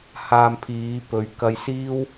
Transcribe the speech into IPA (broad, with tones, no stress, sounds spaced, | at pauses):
h aː˧ m pʰ iː˨˧ p ɵ˨˧ ɥ k ɐ˧ j s iː˥ w